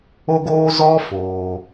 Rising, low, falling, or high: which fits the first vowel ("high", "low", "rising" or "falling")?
high